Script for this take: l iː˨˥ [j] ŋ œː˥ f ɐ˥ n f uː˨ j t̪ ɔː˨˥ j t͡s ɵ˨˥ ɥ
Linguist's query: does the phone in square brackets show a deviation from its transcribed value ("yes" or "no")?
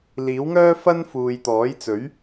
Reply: yes